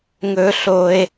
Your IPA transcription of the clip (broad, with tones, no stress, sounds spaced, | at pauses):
ŋ ɵ˧ ɬ o˧ e̯